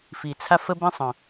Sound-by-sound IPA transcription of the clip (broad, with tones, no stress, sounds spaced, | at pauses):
f i˨ t͡sʰ a˦ f ə˦ b ɛ̃˦ sˤ œ̃˨